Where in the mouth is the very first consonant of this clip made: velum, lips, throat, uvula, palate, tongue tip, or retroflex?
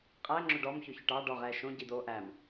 uvula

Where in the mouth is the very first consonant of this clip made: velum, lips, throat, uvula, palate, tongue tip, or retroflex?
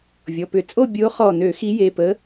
lips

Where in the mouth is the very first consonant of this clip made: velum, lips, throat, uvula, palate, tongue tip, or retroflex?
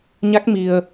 palate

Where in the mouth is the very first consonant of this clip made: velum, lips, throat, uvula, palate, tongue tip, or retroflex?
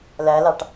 tongue tip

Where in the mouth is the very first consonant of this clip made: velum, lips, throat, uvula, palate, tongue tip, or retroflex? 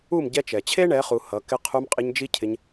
lips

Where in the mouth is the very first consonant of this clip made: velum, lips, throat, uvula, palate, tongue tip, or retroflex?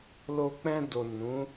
tongue tip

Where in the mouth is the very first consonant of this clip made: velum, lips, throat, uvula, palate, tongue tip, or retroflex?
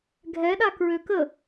velum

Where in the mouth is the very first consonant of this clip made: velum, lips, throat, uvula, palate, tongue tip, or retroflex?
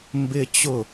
lips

